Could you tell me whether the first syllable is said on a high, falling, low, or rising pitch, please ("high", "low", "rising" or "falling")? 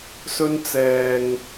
high